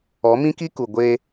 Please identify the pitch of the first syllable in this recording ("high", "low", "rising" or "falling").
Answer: rising